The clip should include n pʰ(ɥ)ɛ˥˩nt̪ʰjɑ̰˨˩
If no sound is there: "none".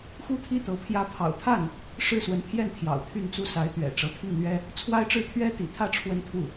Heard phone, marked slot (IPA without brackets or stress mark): j